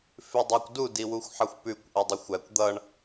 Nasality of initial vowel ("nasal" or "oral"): oral